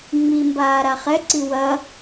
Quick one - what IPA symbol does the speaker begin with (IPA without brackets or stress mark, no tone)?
ŋ͡m